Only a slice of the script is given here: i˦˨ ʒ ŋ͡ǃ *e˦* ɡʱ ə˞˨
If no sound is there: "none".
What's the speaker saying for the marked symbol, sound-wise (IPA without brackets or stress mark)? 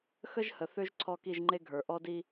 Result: e˦